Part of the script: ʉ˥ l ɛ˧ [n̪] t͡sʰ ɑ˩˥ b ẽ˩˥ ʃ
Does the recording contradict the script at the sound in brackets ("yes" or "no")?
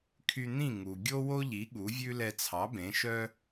yes